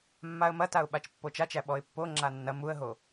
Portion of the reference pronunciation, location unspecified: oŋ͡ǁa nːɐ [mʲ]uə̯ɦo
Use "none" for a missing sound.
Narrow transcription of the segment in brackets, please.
m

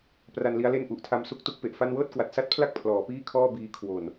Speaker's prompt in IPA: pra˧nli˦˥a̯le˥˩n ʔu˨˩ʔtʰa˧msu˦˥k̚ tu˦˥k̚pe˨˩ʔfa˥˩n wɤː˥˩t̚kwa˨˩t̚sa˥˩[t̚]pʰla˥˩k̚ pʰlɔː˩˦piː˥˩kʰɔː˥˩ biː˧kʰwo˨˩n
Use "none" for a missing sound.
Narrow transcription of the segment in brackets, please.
t̚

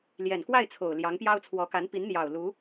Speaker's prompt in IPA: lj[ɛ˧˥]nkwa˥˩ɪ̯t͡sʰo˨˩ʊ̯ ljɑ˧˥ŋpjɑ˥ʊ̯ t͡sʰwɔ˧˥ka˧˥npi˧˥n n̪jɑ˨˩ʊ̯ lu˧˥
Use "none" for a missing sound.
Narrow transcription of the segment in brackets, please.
ɛ˨˩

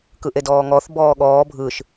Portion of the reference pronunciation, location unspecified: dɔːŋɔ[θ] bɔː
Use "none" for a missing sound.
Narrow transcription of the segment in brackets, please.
θ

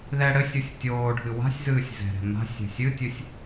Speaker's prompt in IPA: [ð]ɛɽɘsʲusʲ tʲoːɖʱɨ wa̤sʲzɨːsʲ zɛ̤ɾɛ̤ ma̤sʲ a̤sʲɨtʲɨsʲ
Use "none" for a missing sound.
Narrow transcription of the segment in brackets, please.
ð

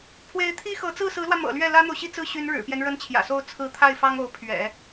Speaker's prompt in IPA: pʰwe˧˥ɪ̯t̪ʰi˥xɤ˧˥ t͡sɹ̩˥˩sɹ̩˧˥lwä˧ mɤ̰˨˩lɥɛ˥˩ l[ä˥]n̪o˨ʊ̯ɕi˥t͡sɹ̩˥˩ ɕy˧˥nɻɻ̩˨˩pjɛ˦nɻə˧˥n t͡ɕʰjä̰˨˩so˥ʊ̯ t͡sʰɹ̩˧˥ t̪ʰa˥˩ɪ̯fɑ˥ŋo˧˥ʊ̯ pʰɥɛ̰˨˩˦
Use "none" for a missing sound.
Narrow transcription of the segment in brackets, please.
ä˥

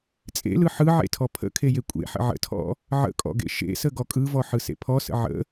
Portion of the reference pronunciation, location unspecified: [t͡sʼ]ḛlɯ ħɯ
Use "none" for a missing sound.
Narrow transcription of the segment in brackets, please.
t͡sʼ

